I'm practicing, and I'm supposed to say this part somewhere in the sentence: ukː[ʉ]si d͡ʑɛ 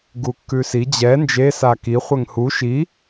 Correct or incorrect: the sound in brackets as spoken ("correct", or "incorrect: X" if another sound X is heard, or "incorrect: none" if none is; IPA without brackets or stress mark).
correct